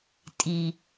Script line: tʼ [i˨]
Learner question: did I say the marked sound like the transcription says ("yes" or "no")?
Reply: yes